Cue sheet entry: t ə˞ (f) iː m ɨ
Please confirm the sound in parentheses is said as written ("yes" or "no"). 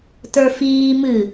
yes